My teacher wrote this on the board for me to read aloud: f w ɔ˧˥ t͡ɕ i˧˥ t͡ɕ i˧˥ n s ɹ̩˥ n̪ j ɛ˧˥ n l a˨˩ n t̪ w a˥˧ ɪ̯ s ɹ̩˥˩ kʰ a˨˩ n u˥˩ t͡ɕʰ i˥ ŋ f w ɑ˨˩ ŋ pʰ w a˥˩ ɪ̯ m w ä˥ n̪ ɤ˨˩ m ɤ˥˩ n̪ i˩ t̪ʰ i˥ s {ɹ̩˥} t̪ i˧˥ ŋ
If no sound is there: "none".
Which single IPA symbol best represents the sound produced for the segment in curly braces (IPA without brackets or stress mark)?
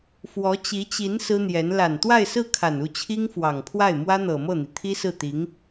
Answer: ɹ̩˥˩